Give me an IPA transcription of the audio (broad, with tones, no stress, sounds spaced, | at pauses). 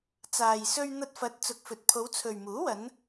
t͡s aː˨ j s ɵ˧ ɥ n̪ ɐ˧ t̚ f ɐ˨˥ t̚ t͡s ʊ˨ k̚ f ɵ˨ t̚ pʰ o˨˧ w t͡sʰ ɵ˨ ɥ m uː˨˥ w ɐ˨˧ n